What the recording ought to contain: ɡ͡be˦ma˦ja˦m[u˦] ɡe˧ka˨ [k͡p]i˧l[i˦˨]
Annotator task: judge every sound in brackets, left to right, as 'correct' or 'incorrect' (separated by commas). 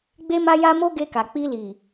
incorrect, correct, incorrect